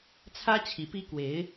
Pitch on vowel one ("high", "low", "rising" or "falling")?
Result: high